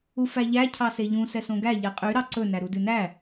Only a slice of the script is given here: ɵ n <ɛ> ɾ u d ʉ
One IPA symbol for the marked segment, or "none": æ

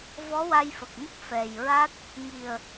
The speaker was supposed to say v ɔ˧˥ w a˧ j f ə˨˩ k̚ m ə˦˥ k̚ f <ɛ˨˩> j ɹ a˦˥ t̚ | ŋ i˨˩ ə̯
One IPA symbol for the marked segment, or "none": ɛ˨˩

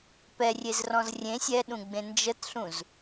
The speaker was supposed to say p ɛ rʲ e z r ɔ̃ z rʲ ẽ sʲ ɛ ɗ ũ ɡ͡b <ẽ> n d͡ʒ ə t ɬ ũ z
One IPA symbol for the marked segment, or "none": ẽ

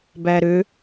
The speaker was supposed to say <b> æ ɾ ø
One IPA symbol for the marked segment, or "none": b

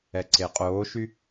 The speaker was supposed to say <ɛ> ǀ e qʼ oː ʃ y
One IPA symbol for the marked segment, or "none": ɛ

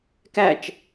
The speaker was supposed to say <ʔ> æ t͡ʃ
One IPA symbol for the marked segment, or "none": k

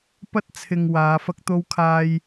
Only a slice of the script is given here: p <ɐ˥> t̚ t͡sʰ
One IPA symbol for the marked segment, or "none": ɐ˥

